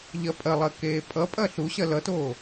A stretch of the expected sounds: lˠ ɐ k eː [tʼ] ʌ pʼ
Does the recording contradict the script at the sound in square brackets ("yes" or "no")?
yes